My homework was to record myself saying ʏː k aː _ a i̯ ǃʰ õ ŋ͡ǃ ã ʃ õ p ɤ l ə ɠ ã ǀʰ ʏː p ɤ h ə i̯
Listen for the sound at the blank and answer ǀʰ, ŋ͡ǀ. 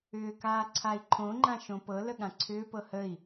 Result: ǀʰ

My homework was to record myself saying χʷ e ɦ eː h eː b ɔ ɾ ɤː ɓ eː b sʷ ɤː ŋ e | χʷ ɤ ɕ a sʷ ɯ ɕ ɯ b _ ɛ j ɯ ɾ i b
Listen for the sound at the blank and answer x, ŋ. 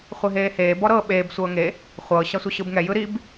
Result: ŋ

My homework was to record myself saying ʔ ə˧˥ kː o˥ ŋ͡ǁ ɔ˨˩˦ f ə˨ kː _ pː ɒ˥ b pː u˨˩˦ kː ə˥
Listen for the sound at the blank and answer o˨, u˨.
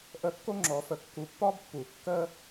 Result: u˨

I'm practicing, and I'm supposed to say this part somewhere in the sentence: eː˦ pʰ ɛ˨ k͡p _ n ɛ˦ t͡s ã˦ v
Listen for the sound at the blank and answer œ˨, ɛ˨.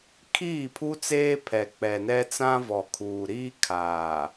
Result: ɛ˨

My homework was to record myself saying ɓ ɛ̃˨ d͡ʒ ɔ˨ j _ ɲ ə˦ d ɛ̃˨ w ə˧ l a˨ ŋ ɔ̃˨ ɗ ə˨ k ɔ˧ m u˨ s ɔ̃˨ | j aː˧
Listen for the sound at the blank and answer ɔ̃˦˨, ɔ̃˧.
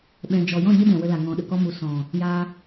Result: ɔ̃˦˨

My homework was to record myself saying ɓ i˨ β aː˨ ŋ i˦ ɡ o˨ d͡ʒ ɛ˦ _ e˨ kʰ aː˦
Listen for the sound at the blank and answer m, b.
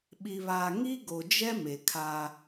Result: m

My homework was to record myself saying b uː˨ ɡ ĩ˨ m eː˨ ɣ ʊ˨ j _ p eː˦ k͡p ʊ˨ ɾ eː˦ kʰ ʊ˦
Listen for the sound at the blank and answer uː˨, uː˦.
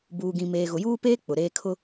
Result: uː˦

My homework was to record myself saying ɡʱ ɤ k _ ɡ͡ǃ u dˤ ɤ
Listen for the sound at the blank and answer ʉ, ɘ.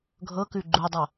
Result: ʉ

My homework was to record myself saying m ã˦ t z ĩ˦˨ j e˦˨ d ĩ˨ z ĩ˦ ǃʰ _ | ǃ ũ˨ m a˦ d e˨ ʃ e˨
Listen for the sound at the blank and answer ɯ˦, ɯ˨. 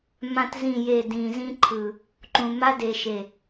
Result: ɯ˨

